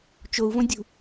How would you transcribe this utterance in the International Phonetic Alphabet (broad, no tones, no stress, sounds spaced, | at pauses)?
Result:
t͡ʃ o u̯ v õ dʲ ṳ